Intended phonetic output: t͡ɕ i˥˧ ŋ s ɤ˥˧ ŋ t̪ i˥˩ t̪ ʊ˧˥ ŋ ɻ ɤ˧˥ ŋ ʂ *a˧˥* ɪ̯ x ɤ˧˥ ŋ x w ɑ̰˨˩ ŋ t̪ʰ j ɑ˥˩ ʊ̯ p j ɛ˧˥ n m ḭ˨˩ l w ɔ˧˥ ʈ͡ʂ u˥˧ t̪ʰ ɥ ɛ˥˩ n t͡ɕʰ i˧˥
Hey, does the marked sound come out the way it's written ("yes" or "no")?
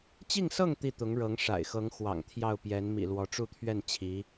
no